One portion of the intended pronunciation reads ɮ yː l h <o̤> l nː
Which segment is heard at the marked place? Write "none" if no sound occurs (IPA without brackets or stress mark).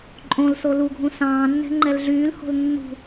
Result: o̤